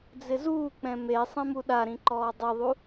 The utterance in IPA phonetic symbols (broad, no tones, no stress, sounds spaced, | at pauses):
d͡z ɪ z uː k͡p ɛ̃ m e sˤ ɛ̃ m u ɗ a ɾ ĩ ǃ ɔː dˤ i ðˤ u